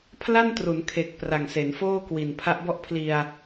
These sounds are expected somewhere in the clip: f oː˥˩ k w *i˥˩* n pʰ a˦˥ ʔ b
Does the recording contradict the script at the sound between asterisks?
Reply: yes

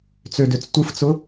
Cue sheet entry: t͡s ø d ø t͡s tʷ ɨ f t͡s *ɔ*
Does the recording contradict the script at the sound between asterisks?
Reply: yes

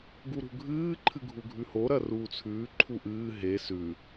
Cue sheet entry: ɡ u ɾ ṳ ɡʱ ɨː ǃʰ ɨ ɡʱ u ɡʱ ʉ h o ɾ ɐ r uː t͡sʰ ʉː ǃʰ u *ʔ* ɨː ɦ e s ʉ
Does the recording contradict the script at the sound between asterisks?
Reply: no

